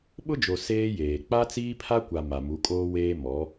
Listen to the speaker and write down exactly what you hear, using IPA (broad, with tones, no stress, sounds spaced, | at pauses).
ɓ ʊ˦ d͡ʒ o˨ s eː˦ j eː˨ k͡p a˦ t͡s iː˦ pʰ a˦ kʷ a˨ m a˨ m u˨˦ kʼ oː˦ w eː˦ m ɔ˨˦